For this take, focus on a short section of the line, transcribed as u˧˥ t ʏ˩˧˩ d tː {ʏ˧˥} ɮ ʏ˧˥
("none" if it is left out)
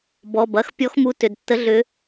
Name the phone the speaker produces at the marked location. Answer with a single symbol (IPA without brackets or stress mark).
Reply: ə˧˥